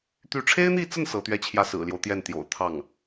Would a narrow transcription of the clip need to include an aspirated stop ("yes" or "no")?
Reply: yes